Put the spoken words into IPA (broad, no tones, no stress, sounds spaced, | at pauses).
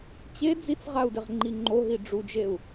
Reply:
t͡ɕ e d͡z i t͡s ʁ a u̯ d ɪ ʁ ŋ͡ǃ i ŋ͡ǃ o ɦ i ɖ͡ʐ u d͡ʒ e u̯